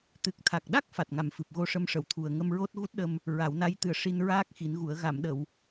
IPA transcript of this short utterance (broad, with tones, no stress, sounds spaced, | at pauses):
t̪ ɨ˨˩ k̚ t̪ʰ a˨˩ k̚ ɗ a˦˥ k̚ f a˨˩ t̚ ŋ a˨˩ m f ɨ˨˩ p̚ ɣ o˧ ʂ ə˧ m ʂ ə˨˩˨ w t̪ʰ u˨˩ ə̯ ŋ ə˧ m ɹ o˦˥ t̚ ɣ u˦˥ t̚ ɗ ə˧ m | ɹ a˨˩˦ w n a˧˥ j t̪ ɨ˨˩ ə̯ ʂ i˧ n ɹ aː˦˥ k̚ x i˨˩˦ n ɣ u˨˩˦ ə̯ ɣ a˨˩˨ m ɗ ə˨˩˨ w